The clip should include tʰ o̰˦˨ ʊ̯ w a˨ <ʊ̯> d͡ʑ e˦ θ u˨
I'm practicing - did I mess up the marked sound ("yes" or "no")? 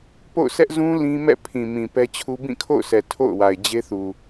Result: yes